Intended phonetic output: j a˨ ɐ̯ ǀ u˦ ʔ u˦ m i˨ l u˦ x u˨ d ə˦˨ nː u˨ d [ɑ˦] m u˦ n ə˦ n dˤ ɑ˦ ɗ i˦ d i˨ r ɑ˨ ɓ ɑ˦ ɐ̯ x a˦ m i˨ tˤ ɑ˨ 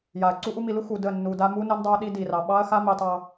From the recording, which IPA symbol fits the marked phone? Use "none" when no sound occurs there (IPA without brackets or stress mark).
a˦